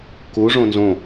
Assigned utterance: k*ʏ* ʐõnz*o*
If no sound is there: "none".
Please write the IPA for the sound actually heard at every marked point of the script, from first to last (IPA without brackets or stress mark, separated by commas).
u, õ